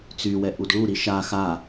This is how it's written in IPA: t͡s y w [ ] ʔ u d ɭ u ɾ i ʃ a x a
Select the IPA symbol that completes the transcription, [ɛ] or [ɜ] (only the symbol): ɛ